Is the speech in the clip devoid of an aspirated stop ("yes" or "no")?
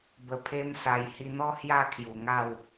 no